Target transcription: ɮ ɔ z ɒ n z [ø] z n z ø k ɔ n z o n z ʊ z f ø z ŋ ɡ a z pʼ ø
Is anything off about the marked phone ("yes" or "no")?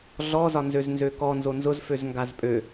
no